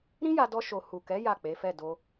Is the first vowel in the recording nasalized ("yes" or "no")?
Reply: yes